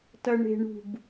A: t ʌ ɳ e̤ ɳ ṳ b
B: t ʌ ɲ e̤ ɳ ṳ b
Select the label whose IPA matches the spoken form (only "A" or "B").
A